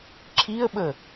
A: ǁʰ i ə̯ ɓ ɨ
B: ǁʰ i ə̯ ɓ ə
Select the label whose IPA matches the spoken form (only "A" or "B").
B